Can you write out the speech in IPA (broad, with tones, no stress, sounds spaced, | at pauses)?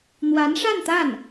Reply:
n̪ w a˧˥ n ʂ a˥˧ n t̪ a˥˩ n